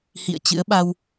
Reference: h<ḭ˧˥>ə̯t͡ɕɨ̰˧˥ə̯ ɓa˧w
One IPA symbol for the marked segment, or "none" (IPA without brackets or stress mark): ḭ˧˨